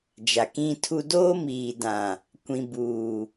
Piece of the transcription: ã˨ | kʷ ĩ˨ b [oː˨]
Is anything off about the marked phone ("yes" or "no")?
yes